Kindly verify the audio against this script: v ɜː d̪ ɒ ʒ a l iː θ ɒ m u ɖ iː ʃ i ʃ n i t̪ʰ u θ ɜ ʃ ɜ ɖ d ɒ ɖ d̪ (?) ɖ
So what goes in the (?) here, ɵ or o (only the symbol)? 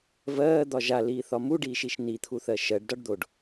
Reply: o